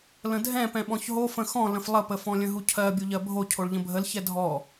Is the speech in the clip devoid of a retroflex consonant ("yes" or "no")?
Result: no